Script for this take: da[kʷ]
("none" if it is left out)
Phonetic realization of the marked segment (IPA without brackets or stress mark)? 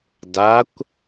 kʷ